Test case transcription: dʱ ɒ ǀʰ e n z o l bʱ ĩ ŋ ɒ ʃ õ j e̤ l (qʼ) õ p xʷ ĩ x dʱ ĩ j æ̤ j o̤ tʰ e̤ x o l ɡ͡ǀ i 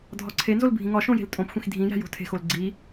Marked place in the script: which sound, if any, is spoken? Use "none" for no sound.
tʼ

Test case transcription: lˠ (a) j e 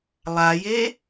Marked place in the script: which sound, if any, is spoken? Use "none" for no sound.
a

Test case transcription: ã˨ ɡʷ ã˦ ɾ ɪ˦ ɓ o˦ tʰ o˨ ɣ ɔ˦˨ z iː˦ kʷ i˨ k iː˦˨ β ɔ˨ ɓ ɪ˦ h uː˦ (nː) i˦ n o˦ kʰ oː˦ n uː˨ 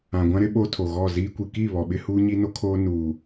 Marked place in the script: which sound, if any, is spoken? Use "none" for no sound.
ɲ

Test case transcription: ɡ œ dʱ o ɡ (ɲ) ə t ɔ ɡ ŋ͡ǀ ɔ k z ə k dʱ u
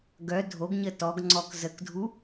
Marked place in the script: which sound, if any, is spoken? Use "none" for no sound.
ɲ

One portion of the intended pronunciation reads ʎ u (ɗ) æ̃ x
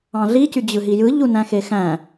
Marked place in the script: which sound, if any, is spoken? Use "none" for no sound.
n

